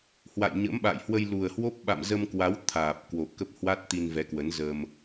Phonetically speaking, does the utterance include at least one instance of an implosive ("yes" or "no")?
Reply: yes